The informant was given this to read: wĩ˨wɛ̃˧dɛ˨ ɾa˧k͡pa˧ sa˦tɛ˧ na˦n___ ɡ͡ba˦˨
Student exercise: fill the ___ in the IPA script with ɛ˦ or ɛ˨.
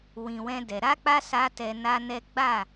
ɛ˦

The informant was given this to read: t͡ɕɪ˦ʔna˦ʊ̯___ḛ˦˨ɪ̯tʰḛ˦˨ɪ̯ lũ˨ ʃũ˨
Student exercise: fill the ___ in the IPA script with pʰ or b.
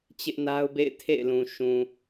b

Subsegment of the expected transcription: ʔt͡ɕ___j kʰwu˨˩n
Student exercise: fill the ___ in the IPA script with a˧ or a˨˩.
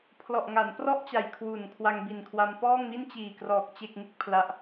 a˨˩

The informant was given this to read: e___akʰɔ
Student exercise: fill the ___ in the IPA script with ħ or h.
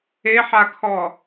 ħ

